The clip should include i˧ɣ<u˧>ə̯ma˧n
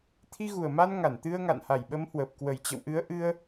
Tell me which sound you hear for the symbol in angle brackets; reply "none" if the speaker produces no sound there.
u˨˩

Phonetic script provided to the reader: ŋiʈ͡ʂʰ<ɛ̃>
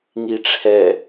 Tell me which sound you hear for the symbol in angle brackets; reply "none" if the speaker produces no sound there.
ɛ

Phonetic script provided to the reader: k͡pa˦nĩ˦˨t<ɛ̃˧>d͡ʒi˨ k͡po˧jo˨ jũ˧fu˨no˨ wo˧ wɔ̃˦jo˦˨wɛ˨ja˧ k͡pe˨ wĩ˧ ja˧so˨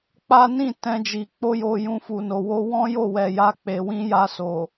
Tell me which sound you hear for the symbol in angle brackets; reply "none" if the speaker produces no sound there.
ɛ̃˧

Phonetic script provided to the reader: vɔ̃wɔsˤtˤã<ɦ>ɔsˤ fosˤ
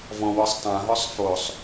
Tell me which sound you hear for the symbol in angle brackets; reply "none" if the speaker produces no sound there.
ɦ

